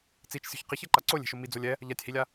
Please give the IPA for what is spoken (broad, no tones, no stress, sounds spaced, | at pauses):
t͡s i t͡ʃ sʲ o̤ ç q i ç ɛ ǃ a ǀ o lʲ e̤ ʃ o m i d͡z o lʲ ɛ | ʎ a tʲ h i lʲ a